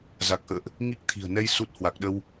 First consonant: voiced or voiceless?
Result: voiced